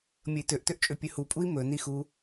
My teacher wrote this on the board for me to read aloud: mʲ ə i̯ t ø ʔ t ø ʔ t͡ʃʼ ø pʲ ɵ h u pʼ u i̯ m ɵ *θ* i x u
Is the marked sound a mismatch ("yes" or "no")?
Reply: yes